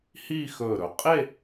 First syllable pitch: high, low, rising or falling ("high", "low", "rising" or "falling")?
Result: falling